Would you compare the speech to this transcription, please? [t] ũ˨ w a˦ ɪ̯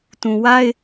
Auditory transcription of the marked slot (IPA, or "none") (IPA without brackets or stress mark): t